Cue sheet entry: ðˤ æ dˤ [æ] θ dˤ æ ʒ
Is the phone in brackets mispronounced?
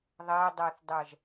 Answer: no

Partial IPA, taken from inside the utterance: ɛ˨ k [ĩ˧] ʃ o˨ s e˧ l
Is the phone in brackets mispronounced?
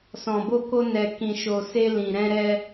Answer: yes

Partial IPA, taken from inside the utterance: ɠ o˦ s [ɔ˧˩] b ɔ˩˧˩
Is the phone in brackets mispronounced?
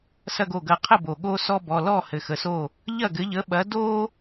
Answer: yes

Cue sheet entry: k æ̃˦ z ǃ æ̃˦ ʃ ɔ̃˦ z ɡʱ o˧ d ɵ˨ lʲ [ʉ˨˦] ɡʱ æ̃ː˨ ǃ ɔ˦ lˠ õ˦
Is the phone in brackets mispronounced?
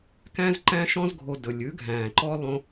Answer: no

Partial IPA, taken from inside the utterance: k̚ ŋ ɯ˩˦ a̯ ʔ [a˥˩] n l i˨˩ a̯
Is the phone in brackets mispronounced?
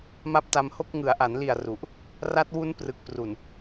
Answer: yes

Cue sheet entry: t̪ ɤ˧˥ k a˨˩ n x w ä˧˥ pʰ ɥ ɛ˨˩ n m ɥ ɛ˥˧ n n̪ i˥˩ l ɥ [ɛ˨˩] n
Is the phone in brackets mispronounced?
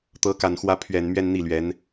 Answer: yes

